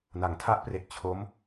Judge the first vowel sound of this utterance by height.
low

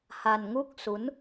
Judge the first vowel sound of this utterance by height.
low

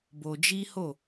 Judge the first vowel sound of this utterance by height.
mid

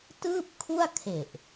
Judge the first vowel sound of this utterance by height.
high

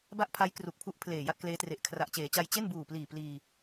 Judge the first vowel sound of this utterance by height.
low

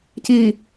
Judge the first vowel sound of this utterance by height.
high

